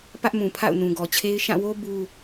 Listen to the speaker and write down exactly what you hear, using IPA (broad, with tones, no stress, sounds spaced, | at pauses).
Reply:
p ä˦ ʔ m ũ˨ pʰ a̰˦˨ ʊ̯ n ũ˨ ɡ ɔ˨ t͡ɕʰ e˦ ɪ̯ ʃ ã˦˨ w o˦ b u˦